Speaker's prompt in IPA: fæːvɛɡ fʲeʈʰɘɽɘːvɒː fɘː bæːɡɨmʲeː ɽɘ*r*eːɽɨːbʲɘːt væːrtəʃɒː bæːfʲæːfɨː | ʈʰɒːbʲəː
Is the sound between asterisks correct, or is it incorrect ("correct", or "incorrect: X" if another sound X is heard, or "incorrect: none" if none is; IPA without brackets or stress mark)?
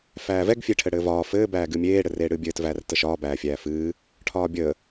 correct